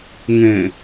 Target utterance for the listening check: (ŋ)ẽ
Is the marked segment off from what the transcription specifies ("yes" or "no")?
no